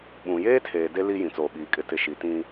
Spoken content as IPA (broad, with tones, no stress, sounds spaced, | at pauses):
ɓ ũ˨ j eː˦ tʰ eː˨ d e˦ l i˦ j ĩ˨ t͡s oː˨ ɓ iː˨ kʼ ɪ˦ t ɪ˦ ʃ i˨ t ĩ˦